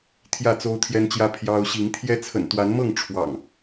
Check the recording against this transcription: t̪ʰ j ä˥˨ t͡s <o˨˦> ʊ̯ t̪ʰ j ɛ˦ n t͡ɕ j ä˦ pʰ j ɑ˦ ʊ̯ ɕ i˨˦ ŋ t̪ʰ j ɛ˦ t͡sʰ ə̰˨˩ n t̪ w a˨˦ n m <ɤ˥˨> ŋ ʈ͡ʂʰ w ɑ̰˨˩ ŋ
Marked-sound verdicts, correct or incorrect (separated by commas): incorrect, correct